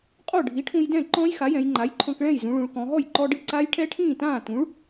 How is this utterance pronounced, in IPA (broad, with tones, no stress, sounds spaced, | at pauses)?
qʼ o˥˩ ɖʱ i˩˥ ʈʰ ũ˧ j d ɛ̃˥˩ ǃ ɔ̃˦˥ j x a˩˥ j ɛ̃˩˧ j ŋ͡ǃ a˩˥ j ǃʰ ɔ̃˧ k ɭ ɛ̃˥˩ j z ũ˩˧ ɭ ũ˩˧ ɭ k ɔ̃˩˧ ɦ ɔ˥˩ j ǃ ɔ˧ ɖ ɨ˥˩ ǀ a˦˥ j ʈʰ ɛ˦˥ ʈʰ ĩː˥˩ t ãː˥˩ t ũ˩˥ ɭ